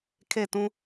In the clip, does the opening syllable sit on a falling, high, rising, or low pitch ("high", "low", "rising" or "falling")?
falling